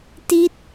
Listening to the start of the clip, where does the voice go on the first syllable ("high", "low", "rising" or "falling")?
falling